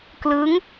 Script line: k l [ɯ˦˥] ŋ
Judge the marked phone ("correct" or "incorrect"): correct